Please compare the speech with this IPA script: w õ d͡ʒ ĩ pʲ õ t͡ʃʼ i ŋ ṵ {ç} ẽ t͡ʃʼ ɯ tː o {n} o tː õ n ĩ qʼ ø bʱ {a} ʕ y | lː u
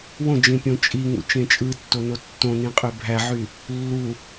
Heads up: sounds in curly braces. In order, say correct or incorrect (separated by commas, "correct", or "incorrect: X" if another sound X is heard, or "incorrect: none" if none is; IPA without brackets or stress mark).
incorrect: t͡ʃ, correct, incorrect: æ